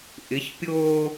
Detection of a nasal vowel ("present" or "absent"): absent